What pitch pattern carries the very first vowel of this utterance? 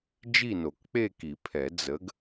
falling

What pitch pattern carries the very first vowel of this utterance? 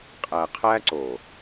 low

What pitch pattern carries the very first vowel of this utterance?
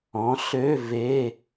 rising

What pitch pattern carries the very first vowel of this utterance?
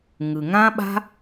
low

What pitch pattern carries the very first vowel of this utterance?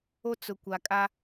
high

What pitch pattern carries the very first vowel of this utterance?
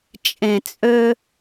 low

